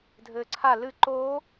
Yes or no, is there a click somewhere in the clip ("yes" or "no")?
yes